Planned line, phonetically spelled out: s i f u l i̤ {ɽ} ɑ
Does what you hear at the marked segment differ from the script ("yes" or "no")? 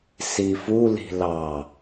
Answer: yes